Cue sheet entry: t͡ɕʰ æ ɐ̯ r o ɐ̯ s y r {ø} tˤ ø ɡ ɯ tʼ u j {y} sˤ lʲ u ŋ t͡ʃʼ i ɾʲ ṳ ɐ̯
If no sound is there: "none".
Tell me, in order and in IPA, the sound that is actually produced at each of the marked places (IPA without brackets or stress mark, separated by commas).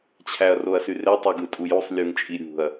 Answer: e, u